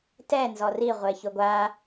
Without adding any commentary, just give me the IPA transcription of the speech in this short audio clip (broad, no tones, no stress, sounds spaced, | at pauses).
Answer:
t ɛ n z ɔ r i ʁʷ e ç ʊ ɡʷ a